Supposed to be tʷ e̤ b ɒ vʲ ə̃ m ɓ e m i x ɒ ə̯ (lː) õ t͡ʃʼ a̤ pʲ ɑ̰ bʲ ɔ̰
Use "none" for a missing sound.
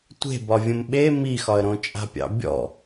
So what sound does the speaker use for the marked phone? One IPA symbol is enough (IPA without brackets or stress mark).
ɾ